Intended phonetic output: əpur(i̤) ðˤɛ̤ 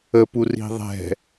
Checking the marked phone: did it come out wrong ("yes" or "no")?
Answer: no